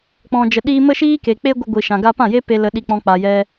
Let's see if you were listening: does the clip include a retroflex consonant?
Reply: no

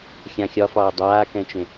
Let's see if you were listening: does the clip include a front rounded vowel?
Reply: no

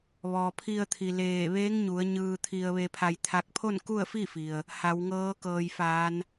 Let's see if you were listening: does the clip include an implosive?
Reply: no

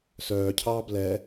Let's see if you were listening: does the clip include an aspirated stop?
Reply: yes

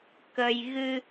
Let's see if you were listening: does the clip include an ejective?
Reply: no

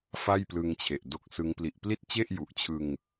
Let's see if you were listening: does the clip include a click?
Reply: no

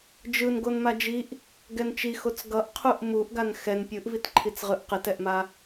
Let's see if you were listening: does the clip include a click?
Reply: yes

